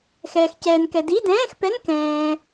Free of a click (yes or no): yes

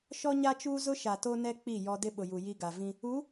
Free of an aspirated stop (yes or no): yes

